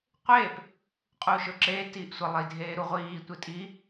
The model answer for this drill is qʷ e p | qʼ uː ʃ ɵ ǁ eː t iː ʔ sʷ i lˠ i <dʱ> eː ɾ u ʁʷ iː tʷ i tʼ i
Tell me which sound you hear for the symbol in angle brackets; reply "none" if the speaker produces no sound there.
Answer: dʱ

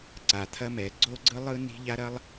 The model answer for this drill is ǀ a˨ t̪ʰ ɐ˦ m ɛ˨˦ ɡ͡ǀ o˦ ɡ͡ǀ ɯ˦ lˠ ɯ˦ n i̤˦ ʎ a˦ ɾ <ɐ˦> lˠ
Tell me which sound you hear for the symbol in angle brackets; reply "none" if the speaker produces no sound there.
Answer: ɐ˦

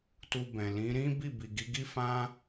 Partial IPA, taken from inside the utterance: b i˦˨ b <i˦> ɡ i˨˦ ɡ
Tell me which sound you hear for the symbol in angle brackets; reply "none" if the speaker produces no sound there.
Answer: i˨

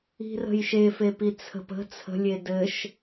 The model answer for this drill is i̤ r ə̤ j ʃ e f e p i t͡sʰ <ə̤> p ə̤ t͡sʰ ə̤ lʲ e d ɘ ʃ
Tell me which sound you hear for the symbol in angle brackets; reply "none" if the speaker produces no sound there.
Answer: ə̤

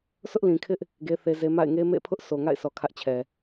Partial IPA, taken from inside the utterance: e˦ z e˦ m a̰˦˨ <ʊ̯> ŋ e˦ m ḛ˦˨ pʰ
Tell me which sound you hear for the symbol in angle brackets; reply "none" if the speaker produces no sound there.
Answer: ɪ̯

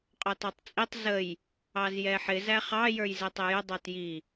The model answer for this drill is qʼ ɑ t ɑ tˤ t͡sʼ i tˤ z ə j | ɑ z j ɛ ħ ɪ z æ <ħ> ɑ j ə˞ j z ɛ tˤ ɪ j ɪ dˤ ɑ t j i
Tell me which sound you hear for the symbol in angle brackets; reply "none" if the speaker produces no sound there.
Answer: χ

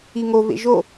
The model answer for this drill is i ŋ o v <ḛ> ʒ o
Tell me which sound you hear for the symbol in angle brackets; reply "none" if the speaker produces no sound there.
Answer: ḛ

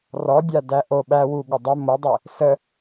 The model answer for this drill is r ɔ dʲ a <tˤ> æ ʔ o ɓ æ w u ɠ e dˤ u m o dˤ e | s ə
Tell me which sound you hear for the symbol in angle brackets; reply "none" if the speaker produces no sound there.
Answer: d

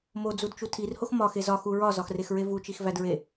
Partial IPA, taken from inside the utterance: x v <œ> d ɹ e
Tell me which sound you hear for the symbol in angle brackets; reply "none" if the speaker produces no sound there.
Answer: æ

